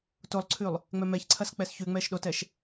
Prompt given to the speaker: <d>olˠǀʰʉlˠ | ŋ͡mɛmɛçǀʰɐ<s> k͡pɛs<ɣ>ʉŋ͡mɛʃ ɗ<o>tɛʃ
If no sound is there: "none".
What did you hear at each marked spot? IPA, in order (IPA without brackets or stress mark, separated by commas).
t, s, ç, o